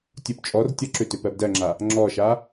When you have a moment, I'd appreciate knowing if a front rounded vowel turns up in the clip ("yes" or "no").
yes